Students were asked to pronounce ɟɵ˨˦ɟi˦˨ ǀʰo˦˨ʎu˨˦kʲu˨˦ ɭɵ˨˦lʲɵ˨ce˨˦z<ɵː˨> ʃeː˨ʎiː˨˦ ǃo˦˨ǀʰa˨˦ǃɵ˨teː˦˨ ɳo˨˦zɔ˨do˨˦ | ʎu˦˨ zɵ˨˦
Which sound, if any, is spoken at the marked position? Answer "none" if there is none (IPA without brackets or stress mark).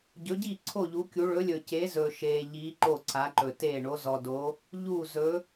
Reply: ɵː˨